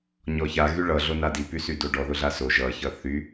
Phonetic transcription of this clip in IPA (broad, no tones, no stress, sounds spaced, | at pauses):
ɲ ɔ ç a ɣ y ɭ ʌ ɮ o n a d i p y s y d o ɖ ɔ ð ʊ ɮ a s o ʒ ʌ ç ʌ θ y